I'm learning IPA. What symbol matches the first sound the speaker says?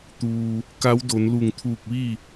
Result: t̪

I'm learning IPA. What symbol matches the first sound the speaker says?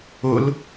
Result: ʊ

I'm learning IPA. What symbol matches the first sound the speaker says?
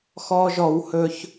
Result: x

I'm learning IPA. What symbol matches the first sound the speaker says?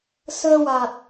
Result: s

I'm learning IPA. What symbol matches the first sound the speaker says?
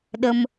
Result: ɗ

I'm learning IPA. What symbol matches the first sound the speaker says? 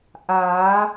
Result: ʔ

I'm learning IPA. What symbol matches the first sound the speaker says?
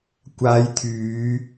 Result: kʷ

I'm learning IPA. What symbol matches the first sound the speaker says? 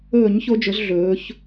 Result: ɵː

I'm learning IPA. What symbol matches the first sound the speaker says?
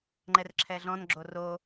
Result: ŋ͡ǃ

